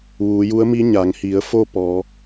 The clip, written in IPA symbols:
ʋ uː˩˧ j u˧˥ ə̯ m i˧˥ ɲ a˩˧ ŋ h i˩˧ ə̯ f o˥˨ p ɔː˩˧

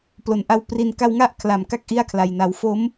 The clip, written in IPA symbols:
p l o˨˩ n ʔ a˦˥ w p r i˧ n k a˧ w ŋ a˥˩ ʔ kʰ l a˨˩ m k a˥˩ k̚ ʔ i˥˩ a̯ kʰ l a˧ j n a˧ w f o˦˥ m

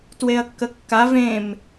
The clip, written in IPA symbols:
t w e ɐ̯ kː ə kː a v ẽ m

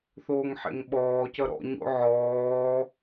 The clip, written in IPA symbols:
θ oː ŋ ħ ḛ ŋ ɓ ɔː c ʌ ɾ ɔ̰ ɲ o̰ ʕ ɔː

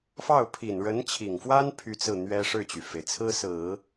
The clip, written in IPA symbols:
f ɑ˥˩ ʊ̯ pʰ i˨˩ n ɻ ə˧˥ n t͡ɕʰ i˨˩ ŋ f w a˥ n pʰ y˥ t͡s ɹ̩˥˩ n̪ ɥ ɛ˥ ʂ ɻ̩˥˩ t͡ɕ y˩ f e˩ ɪ̯ t͡sʰ ɹ̩˥ s ɹ̩˨˩˦

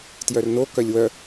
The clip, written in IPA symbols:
t j œ r n o k œ lʲ w œ

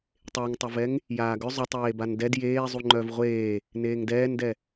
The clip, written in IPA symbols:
tˤ e ŋ tˤ ʏ v ɛ ŋ | j aː ɡ ʏ zˤ ʏ tˤ eː b a n d ɛ d j eː zˤ u ŋ͡ǃ œ v ʁʷ eː | n eː ŋ d ɛː n d ɛ

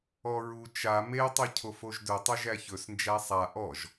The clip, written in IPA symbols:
ɔ ɹ u t͡ʃ a m e tˤ u cʰ o f o ʒ d ɵ tˤ ɵ ʒ æ ç ɵ s n d͡ʒ æ sˤ a ʔ ɔ ʒ

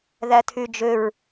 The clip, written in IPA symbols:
ð æ tʰ y d͡ʒ ø ɹ

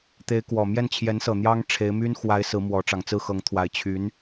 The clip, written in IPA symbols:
t̪ e˧˥ ɪ̯ k w ɔ˨˩ m j ɛ˥˩ n t͡ɕʰ j ɛ˧˥ n s ɤ˨˩ n̪ j ɑ˥ ŋ ʈ͡ʂʰ e˧˥ ɪ̯ m y˥ n x w a˧˥ ɪ̯ s ɹ̩˧˥ m w ɔ˧˥ ʈ͡ʂ ɑ˨˩ ŋ t͡s ɹ̩˥˩ x ɤ˧˥ ŋ t̪ʰ w a˧˥ ɪ̯ t͡ɕʰ y˧˥ n

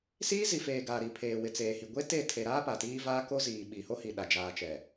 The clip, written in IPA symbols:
s iː˦ z i˨ f eː˨ ɡ a˨ ɾ i˨ pʰ eː˨ w ɪ˨ t͡s eː˨ h i˨ ɡʷ e˦ t e˦˨ tʰ e˨ ɾ aː˦ p a˨ t iː˦ v aː˦ k o˦ z iː˨ ɓ i˨ h o˦ h i˨ ɗ a˨ d͡ʒ aː˨ t͡ʃ ɛ˨

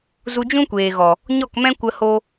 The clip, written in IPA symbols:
z u˧ d͡ʒ ũ˦ kʷ eː˨ ɣ ɔ˨ | ɲ ɔ˦˨ k m ɛ̃˦ kʷ ə˧ h o˦

